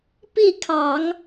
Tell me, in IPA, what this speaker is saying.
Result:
p i˥˩ kʰ ɑ˨˩˦ ŋ

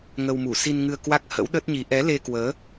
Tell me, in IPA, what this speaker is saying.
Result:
ŋ ə˧ w m u˧˩ s i˧ n ŋ ɨ˧ ə̯ k w a˦˥ k̚ h ə̰˧˥ w ɗ ə˦˥ t̚ ɲ i˨˦ ʔ ɛ˨˦ l e˧ k w əː˨˦

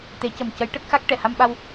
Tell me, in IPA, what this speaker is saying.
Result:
t̪ e˨˩˦ c ə˨˩ m c ə˧˥ j ʈ ə˦˥ k̚ x a˦˥ k̚ ʈ ɛ˨˩˨ h a˧ m ɓ a˧ w

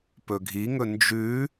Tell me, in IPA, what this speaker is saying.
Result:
p ɵ ɡʱ i ŋ ɵ n d͡ʒ ʉ

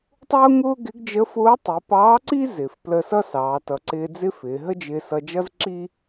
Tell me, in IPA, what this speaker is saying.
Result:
tˤ ʊː˥ ŋ ʊː˥ ɡ ɪ˧˥ ɡ d͡ʒ ə˧˥ f ʊː˧˥ tˤ i˩˧ p ɑː˧˥ ǀ i˥ z ɪ˩ f p l ə˧ s ʌ˥ s ɑː˩˧ t ʌ˩˧ ǀ ɪː˧ d͡z ɪ˥ f ɪː˩˧ ɦ ə˥ d͡ʒ ɪː˧ s ʌ˧ d͡ʒ ʌ˥ z ǁ i˥

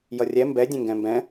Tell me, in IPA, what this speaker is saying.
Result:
j ʌ rʲ ɛ m b ɛ dʲ ɛ̃ ŋ ɡ ɛ̃ m b ɛ̃

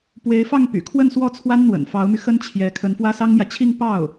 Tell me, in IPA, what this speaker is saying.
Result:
p w e˧˥ ɪ̯ f ɑ˥˩ ŋ p y̰˨˩ kʰ w ə˥˧ n s w ɔ˥˩ t͡sʰ w a˥ n n̪ w ə̰˨˩ n f ɑ˧˥ ʊ̯ m y˧ x ə˥ n t͡ɕʰ j ɛ˧˥ kʰ ə˧˥ n f w ä˥ s ɑ˥ ŋ m j ä˨ t͡ɕʰ i˥˧ ŋ p ɑ˥˩ ʊ̯

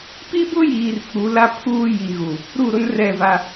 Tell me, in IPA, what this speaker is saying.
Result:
p i˦ b ʊ˦ j iː˨ r k͡p u˨˦ l a˦ pʰ uː˦ j i˨ ɣ u˨ | ɾ u˦˨ ɾ ʊ˦ n r ɛ˦˨ v a˦

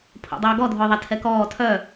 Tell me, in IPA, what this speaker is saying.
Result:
pʰ o̰ dˤ œː ɡ ɔ dʱ ʊː ðˤ ɐ tʰ ɛ k ɔː tʰ œ

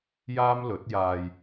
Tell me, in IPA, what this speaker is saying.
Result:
j aː˥ m l ɵ˨˥ t̚ j aː˧ j

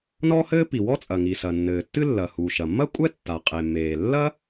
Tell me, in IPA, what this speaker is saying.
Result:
n ɔ˥ h ɘː˥ p i˩ w ɔ˥ t͡sʼ ɐ˩ ŋ i˩ s ɐ˩ nː ɘː˩ tː ɨ˥ lː ɐ˩ h u˩ ʃ ɐ˩ mː ɐ˥ kʷʼ ɛ˥ tː a˩ qʼ e˩ m eː˩ lː ɐ˥

